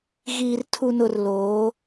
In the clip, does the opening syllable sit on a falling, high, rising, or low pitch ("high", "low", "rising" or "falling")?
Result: low